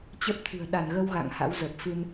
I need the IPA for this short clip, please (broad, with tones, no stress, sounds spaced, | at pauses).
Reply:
t͡ɕ ə˦˥ p̚ t̪ʰ ɨ̤˨˩ ə̯ ɗ a˧˩ n ɣ ə˧ w ɣ a̰˧˨ ŋ h a̰˧˥ w z ə˨˩ p̚ f ɨ˧ n